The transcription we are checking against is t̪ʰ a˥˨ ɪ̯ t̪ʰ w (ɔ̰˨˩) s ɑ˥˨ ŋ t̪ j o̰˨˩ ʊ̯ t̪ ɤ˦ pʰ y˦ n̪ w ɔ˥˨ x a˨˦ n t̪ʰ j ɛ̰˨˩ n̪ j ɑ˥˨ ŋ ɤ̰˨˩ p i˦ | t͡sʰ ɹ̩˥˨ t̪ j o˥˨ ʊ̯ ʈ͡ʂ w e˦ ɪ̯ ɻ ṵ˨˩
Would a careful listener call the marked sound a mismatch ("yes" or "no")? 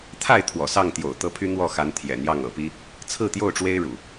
no